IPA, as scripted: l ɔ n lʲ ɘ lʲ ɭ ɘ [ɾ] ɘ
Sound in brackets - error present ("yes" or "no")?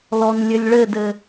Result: yes